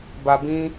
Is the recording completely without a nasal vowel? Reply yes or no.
no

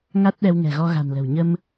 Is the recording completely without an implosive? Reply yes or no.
no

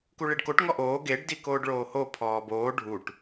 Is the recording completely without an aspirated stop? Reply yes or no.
no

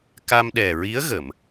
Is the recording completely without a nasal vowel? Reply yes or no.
yes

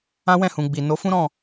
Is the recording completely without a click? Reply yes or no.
yes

